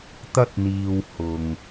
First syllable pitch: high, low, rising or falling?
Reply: high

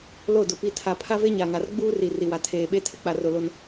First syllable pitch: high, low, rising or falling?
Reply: falling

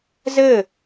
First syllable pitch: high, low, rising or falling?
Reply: falling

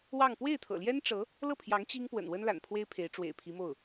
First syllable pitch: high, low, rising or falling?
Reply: falling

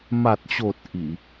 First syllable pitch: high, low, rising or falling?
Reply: low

